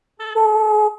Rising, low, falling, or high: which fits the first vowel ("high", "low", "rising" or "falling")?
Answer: high